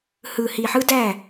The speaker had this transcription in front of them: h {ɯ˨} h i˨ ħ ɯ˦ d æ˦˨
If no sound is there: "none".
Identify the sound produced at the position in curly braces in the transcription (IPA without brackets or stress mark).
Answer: ɯ˨